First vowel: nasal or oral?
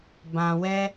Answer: nasal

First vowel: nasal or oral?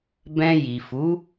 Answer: nasal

